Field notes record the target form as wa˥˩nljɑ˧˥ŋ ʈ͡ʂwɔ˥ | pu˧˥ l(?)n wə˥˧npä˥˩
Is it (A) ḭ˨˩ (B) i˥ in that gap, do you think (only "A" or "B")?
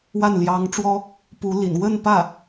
A